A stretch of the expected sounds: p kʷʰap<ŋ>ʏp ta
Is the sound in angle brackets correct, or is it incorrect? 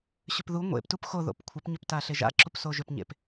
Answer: incorrect